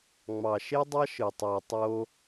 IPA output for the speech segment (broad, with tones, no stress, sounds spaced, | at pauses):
ŋ͡m ɑ˨ ʃ e˦ dˤ ɑ˦ ʃ ɯ˨ tˤ o˨ tˤ o˧